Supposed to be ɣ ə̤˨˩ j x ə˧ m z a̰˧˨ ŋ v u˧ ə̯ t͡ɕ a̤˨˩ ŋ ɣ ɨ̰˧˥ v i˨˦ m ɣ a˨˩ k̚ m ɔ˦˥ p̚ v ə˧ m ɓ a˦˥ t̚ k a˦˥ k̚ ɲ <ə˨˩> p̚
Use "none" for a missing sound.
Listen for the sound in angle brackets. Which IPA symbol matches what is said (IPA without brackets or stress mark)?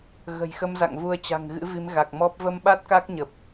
ə˨˩